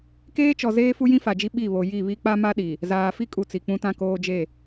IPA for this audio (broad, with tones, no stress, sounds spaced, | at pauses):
k eː˦ t͡ʃ ɔ˨ z eː˦ f u˦ j ĩ˦ f a˨ d͡ʒ i˦ ɓ i˦˨ β o˨ j i˦˨ β i˦ k͡p a˦ m a˦ ɗ i˨ | z aː˨ f i˦ kʼ u˨ t͡s i˨ k͡p ũ˦ t ã˦ k oː˦ d͡ʒ e˦˨